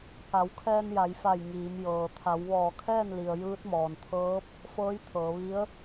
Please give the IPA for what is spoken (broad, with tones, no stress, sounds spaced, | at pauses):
k a˩˧ w kʰ ɛː˧ n j a˩˧ j f a˧˩ j ŋ iː˩˧ m j ɤː˩ t̪ʰ a˩˧ w ʋ ɔː˧˩ kʰ ɛː˥˨ n l i˩ ə̯ j ɯː˧˥ t̚ m ɔː˩ n t̪ʰ ɤː˧˥ p̚ | f ɤː˧˥ j t̪ʰ ɤː˩˧ ʋ i˧˥ ə̯